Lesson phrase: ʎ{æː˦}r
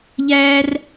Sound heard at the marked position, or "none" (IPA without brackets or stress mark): æː˦